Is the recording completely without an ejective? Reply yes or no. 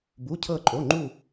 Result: no